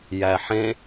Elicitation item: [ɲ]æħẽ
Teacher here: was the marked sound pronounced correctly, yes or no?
no